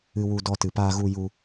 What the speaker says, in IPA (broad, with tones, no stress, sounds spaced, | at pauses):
ɨ˧ w u˧ d ɔ˧ t ɨ˨ p aː˧ ɣ u˧ j u˧